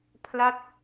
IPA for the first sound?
pʰ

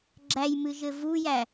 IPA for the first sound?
ɡ͡ǁ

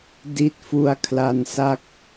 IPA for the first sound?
d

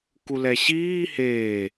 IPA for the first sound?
k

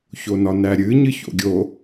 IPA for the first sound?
ç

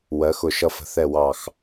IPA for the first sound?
w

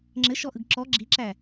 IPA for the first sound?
ŋ͡ǁ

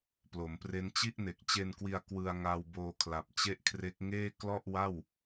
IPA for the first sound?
p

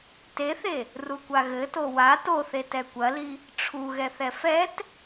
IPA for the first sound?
t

